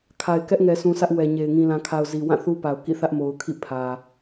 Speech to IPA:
kʰ a˨ ɪ̯ k ɛ˦ ʔ ŋ ɛ˨ s ũ˨ sʰ ä˦ ʔ w ɛ˨ ɲ e˨ ɪ̯ ŋ ĩ˨ l ã˨ kʰ a˨ ʊ̯ z i˨ w ã˦˨ θ u˦ p a˨ ʊ̯ k ḭ˦˨ θ ä˦ ʔ m o˨ ʊ̯ kʰ ḭ˦˨ pʰ ä˨

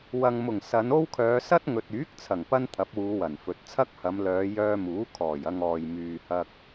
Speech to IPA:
w ɐ˨ ŋ m ʊ˨˩ ŋ s ɐ˨˧ n o˥ w kʰ œː˨˧ s ɐ˥ t̚ ŋ ɵ˨ t̚ yː˨˥ k̚ t͡sʰ ɐ˨˩ ŋ p ɐ˧ n t̪ʰ ɐ˨˥ p̚ w uː˨˧ w ɐ˨˩ n f ɵ˨ t̚ t͡sʰ ɐ˥ k̚ h ɐ˨˧ m l œː˨˧ j œː˧ m uː˨˥ kʰ ɔː˨˩ j ɐ˧ ŋ ɔː˨ j m yː˨ h ɐ˧ k̚

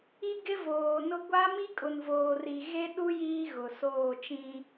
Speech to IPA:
i˦ ɡ ɪ˦ v oː˨ n ʊ˦ ɡʷ a˦ m i˦ kʼ ʊ˨ n v oː˨ r i˨ ɣ e˦ ɗ u˦ j iː˦ ɣ ʊ˨ s oː˦˨ t͡ʃ ĩ˦

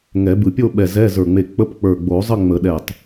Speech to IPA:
ŋ ɛ˨˩˦ b ɯ˧˩ pʲ o˥˧ ɓ ɛ˧˩ z ɛ˧˥˧ z ə˞˧˩ ŋ͡m e˧˩ k͡p ə˧˥˧ p k͡p ə˞˧˩ ɡ͡b o˨˩˦ zˤ ə˥˧ ŋ͡m ə˨˩˦ ɗ ɛ˧˩ tˤ

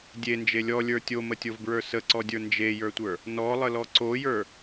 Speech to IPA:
dʲ e n d͡ʒ e lʲ ɔ lʲ ə˞ tʲ o m ə tʲ o v b ɹ ə˞ s ə ǀ ɔ dʲ ə˞ n d͡ʒ e j ə˞ tʷ ə˞ | n ɔ lˠ ə l ɔ ǀ o j ə˞

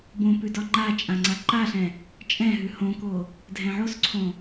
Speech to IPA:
b õ p ʉ d ɒ ŋ͡ǃ a t͡ʃʼ ã ŋ͡ǀ a ǃ a ɬ ɛ̃ | t͡ʃʼ ɛ̃ ɦ ʉ h õ k o | dʱ ɛ̃ ʕ o s ǀʰ õ

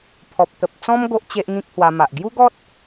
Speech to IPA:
pʰ ɔ˨ p̚ t̪ ə˨ p̚ t͡s ɔ̃˦ m ɡ o˦ ʔ t͡ɕ e˦ ʔ ŋ ĩ˦ k̚ h w a˧ m a˨ ʔ ɡ j u˦ ɡ ɔ˦ t̚

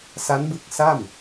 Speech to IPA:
s a˦˥ n b ɯ˦˥ k̚ s a˥˩ m

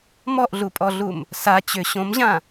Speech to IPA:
m ɔ ʔ ɮ u pʼ ɔ ɮ u m | s a t͡ɕ ʏ ɕ õ m ʑ ã

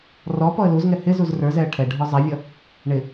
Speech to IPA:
r ɔ p ɔ ə̯ l u z ŋ ɛ h ɪ z u z r ə˞ z ɛ ə̯ ʈʰ ɛ ɖʱ ɔ zˤ ɛ vʲ ʌ | ɳ ɪ

